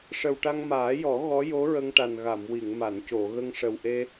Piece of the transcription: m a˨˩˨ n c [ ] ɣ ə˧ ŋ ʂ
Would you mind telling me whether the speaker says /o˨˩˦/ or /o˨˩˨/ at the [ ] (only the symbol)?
o˨˩˨